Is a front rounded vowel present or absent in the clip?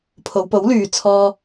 present